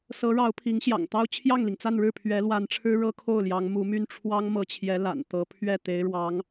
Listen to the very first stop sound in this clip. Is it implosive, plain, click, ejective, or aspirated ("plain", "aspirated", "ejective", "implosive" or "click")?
aspirated